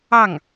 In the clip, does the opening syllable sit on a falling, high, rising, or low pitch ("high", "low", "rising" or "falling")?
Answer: falling